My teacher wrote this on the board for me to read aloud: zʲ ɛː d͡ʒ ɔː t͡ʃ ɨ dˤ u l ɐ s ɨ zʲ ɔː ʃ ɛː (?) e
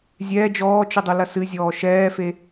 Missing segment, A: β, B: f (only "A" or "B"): B